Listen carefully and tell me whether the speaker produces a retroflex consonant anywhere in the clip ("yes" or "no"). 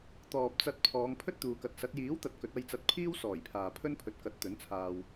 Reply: no